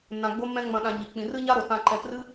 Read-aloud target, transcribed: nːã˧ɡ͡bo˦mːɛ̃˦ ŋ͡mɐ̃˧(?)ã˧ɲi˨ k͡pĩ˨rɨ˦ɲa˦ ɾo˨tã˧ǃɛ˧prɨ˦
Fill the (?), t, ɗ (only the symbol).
ɗ